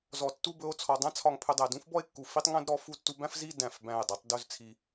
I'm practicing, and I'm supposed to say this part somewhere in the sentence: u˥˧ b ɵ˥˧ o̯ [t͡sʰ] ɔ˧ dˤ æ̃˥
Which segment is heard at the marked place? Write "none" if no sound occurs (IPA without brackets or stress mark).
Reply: t͡sʰ